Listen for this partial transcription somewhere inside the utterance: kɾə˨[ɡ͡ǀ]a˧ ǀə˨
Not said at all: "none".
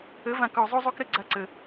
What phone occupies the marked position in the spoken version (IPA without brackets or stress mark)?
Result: ɡ͡ǀ